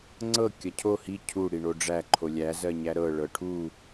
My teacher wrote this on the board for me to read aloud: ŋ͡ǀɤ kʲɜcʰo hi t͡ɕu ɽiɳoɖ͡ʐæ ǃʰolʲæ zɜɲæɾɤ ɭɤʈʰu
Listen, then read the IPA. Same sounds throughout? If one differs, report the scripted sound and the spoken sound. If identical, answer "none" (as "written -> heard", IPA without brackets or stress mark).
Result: t͡ɕ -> cʰ